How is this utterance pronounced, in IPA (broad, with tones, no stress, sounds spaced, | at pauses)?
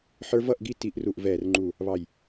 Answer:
ħ ə˞˦ v ʌ˥˨ ʔ ɡ i˥˨ t i˧˩˧ ʔ r u˨˩ ʔ v ɛː˨˩ r ŋ͡ǃ u˨˩ | β ɑ˨˩ j